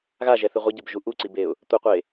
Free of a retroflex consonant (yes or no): yes